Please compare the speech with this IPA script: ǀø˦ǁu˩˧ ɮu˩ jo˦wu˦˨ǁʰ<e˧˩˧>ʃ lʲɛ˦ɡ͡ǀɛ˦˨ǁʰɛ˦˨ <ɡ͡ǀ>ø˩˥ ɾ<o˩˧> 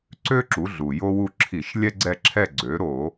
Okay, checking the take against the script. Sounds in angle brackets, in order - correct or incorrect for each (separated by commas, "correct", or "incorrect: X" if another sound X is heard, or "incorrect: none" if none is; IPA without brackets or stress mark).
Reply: incorrect: i˧˩˧, correct, incorrect: o˧˩˧